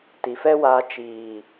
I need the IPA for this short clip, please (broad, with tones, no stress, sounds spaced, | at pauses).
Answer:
t i˨ f ɛ˦ w aː˧ t͡ʃ iː˨